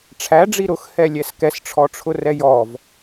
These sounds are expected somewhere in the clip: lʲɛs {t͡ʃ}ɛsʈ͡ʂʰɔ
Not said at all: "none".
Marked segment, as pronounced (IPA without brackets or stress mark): k